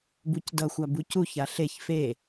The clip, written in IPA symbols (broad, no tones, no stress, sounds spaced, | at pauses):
b u c d ʌ xʷ a b u c u ç a ɬ e ç f e